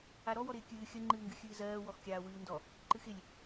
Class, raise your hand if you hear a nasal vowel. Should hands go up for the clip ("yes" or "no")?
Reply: no